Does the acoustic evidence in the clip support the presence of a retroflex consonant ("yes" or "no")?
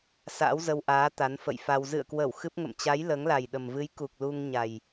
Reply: no